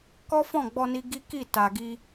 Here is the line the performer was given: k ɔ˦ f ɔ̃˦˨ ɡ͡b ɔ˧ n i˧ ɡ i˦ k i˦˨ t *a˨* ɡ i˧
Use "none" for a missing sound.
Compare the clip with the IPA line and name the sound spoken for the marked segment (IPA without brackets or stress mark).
a˨